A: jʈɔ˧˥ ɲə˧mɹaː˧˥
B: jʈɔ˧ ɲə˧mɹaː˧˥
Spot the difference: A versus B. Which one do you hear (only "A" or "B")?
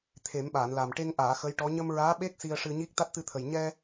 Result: A